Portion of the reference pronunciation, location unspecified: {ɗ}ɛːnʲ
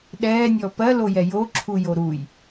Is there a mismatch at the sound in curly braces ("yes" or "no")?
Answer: no